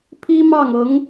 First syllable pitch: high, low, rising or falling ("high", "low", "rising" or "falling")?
high